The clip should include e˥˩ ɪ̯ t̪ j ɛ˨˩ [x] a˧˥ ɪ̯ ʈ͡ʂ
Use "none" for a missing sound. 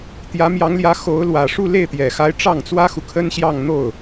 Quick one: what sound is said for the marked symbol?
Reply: x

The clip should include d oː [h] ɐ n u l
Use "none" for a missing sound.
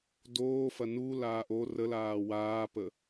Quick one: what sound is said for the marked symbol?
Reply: f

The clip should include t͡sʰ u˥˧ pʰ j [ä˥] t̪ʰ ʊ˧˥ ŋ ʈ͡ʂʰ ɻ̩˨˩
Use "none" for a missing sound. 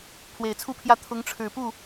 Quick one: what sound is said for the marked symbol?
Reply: ä˥˩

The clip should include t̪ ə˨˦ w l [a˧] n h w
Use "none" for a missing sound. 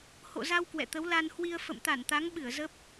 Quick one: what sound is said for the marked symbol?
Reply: a˧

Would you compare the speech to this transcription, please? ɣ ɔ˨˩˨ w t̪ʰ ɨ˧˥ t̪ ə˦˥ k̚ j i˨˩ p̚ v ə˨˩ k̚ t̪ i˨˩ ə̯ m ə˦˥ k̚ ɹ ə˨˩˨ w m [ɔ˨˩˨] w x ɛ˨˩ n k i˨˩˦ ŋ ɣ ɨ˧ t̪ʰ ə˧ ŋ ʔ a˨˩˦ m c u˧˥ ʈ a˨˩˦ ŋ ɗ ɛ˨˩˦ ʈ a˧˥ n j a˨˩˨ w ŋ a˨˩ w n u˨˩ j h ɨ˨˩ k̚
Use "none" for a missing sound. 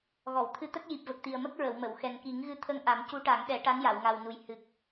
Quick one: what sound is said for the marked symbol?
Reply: ə˨˩˨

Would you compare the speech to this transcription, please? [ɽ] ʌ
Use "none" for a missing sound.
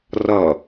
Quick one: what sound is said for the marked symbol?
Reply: r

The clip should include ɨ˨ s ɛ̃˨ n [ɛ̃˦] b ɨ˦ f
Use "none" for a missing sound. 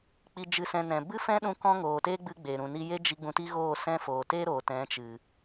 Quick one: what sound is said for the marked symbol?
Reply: ɛ̃˨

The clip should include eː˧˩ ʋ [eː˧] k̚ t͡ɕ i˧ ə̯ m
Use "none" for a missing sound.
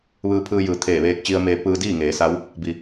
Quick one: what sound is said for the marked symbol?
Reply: eː˧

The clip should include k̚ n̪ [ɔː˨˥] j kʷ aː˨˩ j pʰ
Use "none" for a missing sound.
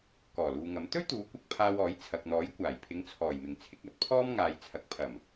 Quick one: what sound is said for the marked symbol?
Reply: ɔː˨˥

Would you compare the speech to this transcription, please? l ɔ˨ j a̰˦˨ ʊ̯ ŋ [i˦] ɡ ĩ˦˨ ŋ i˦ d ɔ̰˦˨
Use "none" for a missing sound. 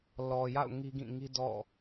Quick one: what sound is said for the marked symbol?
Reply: i˦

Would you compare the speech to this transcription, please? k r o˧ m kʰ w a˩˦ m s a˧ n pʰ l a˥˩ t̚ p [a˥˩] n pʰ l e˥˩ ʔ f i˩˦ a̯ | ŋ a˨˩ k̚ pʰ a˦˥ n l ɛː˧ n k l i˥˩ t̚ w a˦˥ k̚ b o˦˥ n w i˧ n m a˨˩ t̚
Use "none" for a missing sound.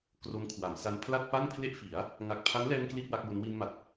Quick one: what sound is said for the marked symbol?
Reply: a˥˩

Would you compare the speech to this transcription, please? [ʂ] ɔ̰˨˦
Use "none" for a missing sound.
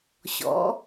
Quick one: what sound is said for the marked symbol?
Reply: ɕ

